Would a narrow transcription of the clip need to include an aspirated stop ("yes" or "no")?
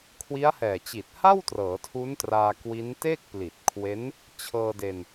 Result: yes